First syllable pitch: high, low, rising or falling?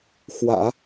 low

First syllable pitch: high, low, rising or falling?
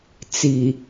low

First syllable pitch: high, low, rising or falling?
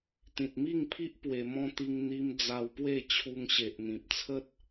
low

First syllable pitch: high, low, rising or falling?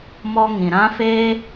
high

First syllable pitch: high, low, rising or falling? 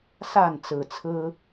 falling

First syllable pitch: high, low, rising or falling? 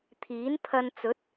rising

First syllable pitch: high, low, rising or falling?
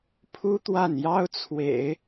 high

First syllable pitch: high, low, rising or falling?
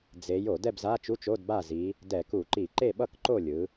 rising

